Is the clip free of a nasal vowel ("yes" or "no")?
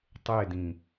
no